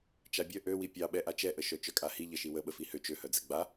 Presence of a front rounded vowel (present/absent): present